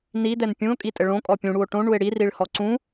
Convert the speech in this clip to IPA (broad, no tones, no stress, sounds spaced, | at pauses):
n i d̪ ɛ n pʲ ũ o̯ kʼ i tʼ ɘ ɭ õ kʼ ɔ pʲ ũ ɽ u o̯ ʈ õ ɳ u e̯ ɽ i r i ɭ h ɔ ǀ ũ